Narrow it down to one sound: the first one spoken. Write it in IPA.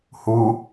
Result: h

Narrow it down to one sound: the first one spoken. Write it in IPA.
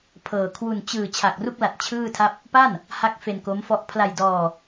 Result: pʰ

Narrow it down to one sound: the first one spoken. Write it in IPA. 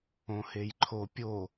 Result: õ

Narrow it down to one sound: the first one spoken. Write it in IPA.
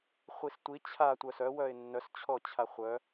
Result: χʷ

